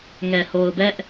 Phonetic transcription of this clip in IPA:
ŋ ɛ˨ h o˨ ʊ̯ b ɛ˦ ʔ

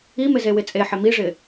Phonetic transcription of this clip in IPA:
i m ɪ z e w ɪ t͡sʼ e ħ ɪ m i ʐ ɪ

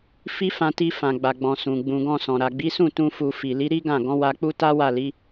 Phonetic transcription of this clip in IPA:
f i˦ f ã˧ t i˧ f ã˨ ɡ͡b a˨ ɡ͡b ɔ̃˨ s ũ˨ ɡ͡b ũ˨ ɡ ɔ̃˧ s ɔ̃˨ ɾ a˨ ɡ͡b i˨˦ s ũ˦˨ t ũ˧ f u˧ f i˨ l i˨˦ ɾ i˦ ɡ ã˦˨ ɡ ɔ̃˨˦ w a˧ k͡p u˦ t a˦ w a˦˨ l i˨˦

